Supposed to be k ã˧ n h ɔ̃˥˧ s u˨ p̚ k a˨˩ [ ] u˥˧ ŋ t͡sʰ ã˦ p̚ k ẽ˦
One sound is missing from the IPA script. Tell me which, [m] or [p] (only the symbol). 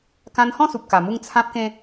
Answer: m